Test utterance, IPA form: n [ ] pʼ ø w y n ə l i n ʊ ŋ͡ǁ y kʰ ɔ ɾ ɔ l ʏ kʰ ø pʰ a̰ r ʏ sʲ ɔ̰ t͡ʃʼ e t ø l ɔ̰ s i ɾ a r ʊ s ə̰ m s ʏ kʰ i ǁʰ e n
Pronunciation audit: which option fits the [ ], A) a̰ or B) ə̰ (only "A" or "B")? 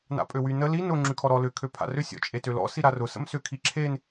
A